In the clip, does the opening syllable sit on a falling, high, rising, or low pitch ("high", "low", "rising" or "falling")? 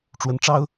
rising